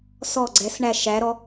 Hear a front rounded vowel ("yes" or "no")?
no